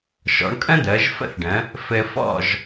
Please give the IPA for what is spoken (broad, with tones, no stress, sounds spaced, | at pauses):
ʃ ɔ̰˩˥ ɳ kʼ ə̃˥ d̪ əː˩˥ ʒ f ə̰˥ θ ɖ ə̃˩˥ | f ɘ˧ f ɔ̰˥˩ ʒ